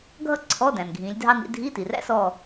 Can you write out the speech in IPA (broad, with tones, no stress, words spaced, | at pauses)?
ɡʱʌ˥ǀʰɔ˧˥˧ dæ̃˩nɡʱĩ˩˧lʲ dʱɑ˥nḭ˧˥ dʱi˧˥˧ti˩ræ̰˥sɔ˦˨